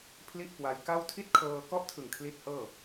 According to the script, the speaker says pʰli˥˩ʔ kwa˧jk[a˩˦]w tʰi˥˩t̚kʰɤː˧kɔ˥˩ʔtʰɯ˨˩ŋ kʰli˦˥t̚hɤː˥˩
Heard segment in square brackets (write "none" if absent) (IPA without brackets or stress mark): a˥˩